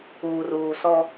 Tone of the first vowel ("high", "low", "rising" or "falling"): low